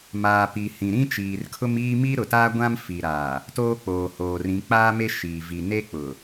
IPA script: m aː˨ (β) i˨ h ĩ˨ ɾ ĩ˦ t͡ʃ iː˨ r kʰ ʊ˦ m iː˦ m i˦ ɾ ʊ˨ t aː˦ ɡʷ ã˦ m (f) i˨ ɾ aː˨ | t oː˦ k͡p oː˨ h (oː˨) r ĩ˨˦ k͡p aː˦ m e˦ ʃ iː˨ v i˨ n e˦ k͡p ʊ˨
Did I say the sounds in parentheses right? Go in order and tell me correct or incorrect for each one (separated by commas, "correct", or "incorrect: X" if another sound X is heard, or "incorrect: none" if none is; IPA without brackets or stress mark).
incorrect: p, correct, correct